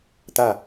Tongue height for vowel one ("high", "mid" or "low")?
low